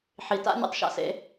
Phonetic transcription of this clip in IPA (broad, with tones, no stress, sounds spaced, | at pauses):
ħ i˨ t a̰˦ nʲ a̰˧ tˤ ʃ a̰˧ s ḛ˧